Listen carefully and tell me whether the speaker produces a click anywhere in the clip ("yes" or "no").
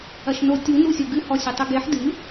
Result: no